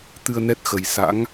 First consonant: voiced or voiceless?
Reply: voiceless